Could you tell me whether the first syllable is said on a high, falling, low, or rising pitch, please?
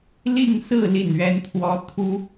falling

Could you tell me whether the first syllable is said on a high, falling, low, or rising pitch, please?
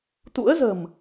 rising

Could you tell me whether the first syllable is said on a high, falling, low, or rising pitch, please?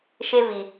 high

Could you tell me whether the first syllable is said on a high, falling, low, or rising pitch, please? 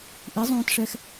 rising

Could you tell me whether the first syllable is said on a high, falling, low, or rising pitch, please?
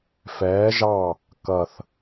rising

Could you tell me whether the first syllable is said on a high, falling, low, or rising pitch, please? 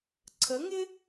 rising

